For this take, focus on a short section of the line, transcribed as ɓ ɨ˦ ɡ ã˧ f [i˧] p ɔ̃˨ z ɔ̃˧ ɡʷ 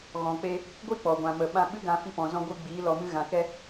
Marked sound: correct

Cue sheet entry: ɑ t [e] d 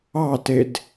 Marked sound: correct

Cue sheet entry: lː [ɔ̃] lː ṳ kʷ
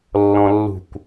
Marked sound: correct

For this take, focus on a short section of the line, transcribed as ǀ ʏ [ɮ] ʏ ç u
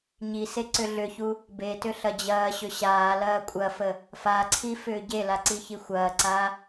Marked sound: correct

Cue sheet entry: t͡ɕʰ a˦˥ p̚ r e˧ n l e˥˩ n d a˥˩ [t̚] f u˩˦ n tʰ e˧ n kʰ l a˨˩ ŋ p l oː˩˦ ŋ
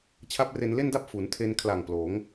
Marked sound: incorrect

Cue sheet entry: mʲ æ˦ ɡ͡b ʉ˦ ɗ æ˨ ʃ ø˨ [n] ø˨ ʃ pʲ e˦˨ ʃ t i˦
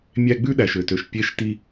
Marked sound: incorrect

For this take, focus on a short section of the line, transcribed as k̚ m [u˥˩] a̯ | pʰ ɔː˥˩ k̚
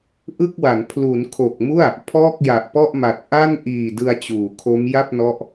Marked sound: correct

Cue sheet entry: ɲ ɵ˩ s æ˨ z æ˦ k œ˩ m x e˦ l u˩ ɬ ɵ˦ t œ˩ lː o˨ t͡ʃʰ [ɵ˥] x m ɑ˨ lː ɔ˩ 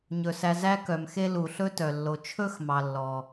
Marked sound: correct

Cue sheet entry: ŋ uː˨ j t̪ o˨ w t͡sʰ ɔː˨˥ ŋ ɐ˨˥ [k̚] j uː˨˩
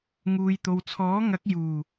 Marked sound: correct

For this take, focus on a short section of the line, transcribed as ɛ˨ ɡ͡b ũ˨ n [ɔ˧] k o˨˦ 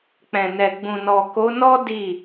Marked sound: incorrect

